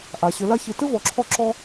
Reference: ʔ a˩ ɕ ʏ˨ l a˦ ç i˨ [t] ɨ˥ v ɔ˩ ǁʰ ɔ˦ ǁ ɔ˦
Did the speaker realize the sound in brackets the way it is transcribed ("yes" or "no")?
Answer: yes